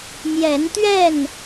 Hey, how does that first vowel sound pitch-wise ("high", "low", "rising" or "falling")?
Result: rising